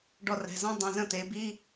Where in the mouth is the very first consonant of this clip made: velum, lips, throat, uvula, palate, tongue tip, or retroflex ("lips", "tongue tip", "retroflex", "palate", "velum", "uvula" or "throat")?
retroflex